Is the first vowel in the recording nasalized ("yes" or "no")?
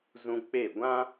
yes